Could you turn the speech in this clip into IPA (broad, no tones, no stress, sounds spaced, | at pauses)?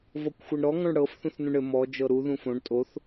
v ɔ kʷ xʷ ɤ ɳ ɾ ɔ ŋ ɔ̃ ɳ ɽ ɤ f θ ũ θ n ũ ɳ ɘ m ɔ d͡ʒ ɤ ɾ u ð ũ f õ ɳ tʼ o θ